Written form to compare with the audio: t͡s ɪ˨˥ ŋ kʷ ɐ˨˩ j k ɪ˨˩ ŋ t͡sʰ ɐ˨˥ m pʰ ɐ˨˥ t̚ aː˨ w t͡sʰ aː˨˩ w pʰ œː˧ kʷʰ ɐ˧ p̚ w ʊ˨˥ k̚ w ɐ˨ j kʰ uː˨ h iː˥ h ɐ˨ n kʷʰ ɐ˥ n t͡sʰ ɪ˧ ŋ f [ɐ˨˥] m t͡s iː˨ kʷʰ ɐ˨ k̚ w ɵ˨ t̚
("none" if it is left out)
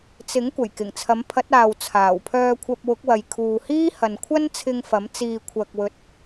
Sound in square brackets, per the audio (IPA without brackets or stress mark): ɐ˨˥